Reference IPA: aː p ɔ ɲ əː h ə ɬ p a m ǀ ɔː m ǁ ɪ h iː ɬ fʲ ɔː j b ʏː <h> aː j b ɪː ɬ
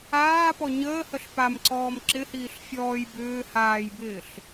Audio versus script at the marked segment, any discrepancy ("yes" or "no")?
no